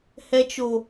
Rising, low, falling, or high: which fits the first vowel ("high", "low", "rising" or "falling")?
high